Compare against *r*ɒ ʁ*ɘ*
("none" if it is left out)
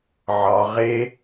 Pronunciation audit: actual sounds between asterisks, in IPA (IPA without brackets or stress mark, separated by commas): ʕ, e